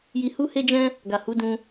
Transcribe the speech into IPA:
ji˧hu˦he˦d͡ʒɛ̃˦ | ɡa˨hu˨˦dũ˧

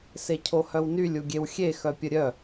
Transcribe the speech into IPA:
secʰohœwnylʲ uɡʲewxʲe xœpʲəɾʲœ

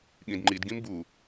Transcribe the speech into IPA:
ɠĩdŋ͡ǃidɡĩm bu

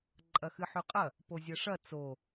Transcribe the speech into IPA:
ǃʼɐxɨħʉqʼɐ | pozʲɐʂɐ t͡so

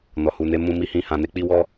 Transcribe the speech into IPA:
nɔ˨hu˨ne˨˦ mũ˧mi˧hĩ˧ hã˧ne˦ k͡pi˦wɔ˦

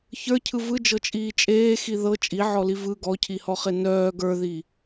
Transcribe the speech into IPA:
çə˞cʰɯ vɯd͡ʒɤt͡ʃʼiː t͡ʃʼeːxi ðɤ t͡ʃʼiʕɔli vɯ ɡɔcʰihɔχe nœː ɡə˞ðiː

